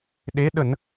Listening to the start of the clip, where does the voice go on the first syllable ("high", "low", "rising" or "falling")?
rising